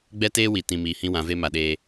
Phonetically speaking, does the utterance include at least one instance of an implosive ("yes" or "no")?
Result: yes